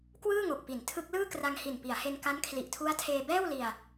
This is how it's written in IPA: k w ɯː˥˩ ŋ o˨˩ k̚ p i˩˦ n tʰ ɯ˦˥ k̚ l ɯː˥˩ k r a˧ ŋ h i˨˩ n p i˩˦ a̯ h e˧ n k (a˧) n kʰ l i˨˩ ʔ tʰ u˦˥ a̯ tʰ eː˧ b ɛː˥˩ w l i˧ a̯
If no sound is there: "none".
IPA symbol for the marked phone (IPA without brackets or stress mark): a˦˥